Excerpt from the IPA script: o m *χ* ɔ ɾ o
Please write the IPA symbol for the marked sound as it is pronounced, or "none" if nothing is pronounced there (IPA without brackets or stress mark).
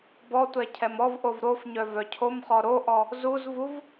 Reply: χ